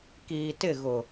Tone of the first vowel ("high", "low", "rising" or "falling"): low